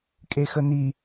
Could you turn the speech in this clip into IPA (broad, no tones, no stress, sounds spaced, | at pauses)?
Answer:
kʼ e x ə n̪ i